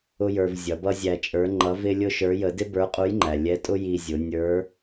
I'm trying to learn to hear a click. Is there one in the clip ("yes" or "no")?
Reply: yes